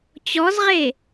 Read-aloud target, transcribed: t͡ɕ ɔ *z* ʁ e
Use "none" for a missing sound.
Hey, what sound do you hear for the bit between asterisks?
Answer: z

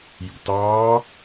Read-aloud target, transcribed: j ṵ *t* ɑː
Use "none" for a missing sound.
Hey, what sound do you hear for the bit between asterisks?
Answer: t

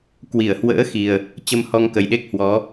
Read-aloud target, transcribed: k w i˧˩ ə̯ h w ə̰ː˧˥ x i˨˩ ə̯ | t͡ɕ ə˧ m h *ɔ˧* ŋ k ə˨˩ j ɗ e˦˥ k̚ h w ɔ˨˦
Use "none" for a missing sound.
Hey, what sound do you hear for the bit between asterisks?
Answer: ɔ˧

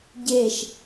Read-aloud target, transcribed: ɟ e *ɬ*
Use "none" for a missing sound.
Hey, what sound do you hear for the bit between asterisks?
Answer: ʃ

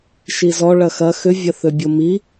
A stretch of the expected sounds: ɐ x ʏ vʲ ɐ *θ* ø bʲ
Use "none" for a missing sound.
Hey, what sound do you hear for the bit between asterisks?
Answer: θ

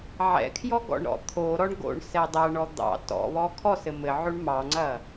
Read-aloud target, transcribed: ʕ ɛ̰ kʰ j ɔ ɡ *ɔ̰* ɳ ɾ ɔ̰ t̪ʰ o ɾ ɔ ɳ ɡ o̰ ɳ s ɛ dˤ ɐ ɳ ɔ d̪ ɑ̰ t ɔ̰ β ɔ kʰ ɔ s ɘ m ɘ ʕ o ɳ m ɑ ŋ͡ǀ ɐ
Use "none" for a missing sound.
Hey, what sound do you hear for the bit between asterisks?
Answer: ɔ̰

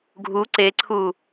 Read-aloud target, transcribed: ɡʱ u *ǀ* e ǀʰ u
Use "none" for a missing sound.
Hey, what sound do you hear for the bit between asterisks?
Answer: ǀ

